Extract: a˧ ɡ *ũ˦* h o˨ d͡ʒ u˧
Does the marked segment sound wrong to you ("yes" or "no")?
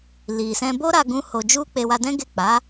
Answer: yes